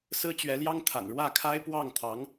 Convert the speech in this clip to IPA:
s ɹ̩˥ t͡ɕ ɥ ɛ˧˥ l j ɑ˥ ŋ t̪ʰ a̰˨˩ n ɻ w ä˥˩ kʰ a˥ ɪ̯ p w ɑ˥˩ ŋ t̪ʰ ɑ˧˥ ŋ

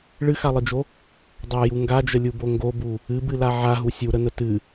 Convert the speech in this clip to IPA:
ɭ ɨ x a lˠ ɨ d͡ʒ o | dˤ a j u ŋ ɡ a d͡ʒ ə lʲ u b o ŋ ɡ o b u | ɨ b ɨ l a ʕ a ɦ u sʲ u ɾ ə n ə t ɨ

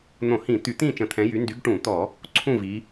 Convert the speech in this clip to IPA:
n̪ õ˧˩˧ h ĩ˧˩˧ t̪ y˧˩˧ t̪ ĩ˥˨ t͡ʃ ə̃˧˩˧ t̪ʰ ɛ̃˨˦ j y˨˦ n d y˨˦ ɡ ʈ ũ˧˩˧ t̪ ɔ˧˩˧ | ǀʰ ũ˥˨ v i˨˦

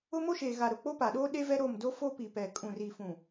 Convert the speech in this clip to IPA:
ʊ˦ m o˦ ʃ eː˨ ɣ a˨ ɾ ʊ˨ k͡p o˦ p a˨ ɗ oː˦ ɗ e˦ v ɛ˦ ɾ o˦˨ m d o˦ f o˦ p i˨ p ɛ˨ kʼ ũ˨ r i˨ f ũ˨

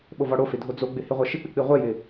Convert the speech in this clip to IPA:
ɓ o v ɔ ɽ o f ɪ dʱ o d͡z o ɡ͡b ɪ h ɪ ʁʷ ɛ ʃ ɪ k͡p ɪ k͡p i ʁʷ ɛ j ɪ

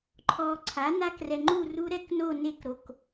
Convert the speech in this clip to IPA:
ǃʰ ɔː˧ ǀʰ a˨˥ n a˦˥ k r ɛ˧ ŋ͡ǃ u˥˧ r u˦˥ ɾ ɛ˥˧ k n o˥˧ n e˥˧ k ɾ o˧ k

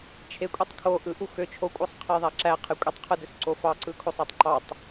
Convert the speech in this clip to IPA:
t͡ʃʰ e kʷʼ i tˤ kʰ o ʔ ɯ ʔ u x ø t͡ʃʰ o kʷʼ ɑ sˤ qʰ e j ðˤ æ ǁ æ qʰ e kʷʼ i tˤ qʰ ɯ d ø s ǀ o f ɑ ǀ ɯ kʰ o sˤ ɑ tˤ ǃ ɑ tˤ

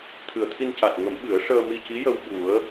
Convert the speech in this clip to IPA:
t̪ʰ ɨ˨˩ ə̯ t̪ʰ i˧ n c a˨˩ t̚ ŋ ə˨˩˦ m ɓ ɨ˨˩˦ ə̯ ʂ əː˧ m i˧ c i˧˥ j ə˧ w ɓ u˨˩˦ ə̯

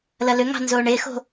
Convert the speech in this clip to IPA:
l ɐ l ʏ ŋ ɑ̤ n z oː ɳ e x o̤

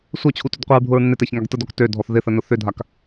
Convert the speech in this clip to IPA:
sʷ œ t͡ɕʰ u t ʏ d qʷ i ɹ bʱ ʊ ɹ nː e t ɛ ç ŋ a ɡ t ə d ɔ k t ø dʱ ɔ θ ð ɪ θ ə n ʊ θ ʏ dʱ a k

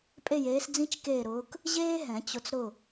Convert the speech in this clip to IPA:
pʼ e˥˨ j eː˧˥ s d͡z ĩ˥ t͡ʃ k eː˥˨ ɾ ʊː˧˥ k | ʑ eː˥ ɦ ɛ̃˨˩˦ t͡ɕ ʊ˧˥ t͡s ɾ ʊ˥˨

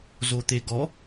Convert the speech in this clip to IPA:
z o t̪ e ɡ ɔ

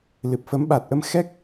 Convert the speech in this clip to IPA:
l ɨ˨˩ p̚ f ə˨˦ m ɓ a˨˩ t̚ ʔ ə˧ m x ɛ˦˥ k̚

